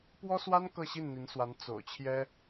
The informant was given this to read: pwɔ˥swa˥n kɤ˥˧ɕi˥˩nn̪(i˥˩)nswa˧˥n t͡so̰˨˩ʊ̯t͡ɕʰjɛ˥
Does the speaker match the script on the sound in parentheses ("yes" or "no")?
no